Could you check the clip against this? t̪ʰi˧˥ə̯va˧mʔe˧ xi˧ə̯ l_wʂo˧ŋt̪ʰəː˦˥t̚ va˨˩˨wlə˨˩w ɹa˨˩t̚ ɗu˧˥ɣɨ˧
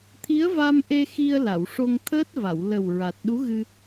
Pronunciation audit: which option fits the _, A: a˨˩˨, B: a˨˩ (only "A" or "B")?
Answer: A